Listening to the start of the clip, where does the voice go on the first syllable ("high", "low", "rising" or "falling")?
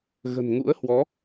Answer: low